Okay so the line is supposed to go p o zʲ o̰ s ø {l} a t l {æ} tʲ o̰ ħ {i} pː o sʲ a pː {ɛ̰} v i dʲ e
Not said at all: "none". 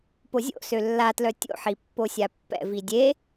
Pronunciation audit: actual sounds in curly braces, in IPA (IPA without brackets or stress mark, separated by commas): lː, œ, i, ɛ̰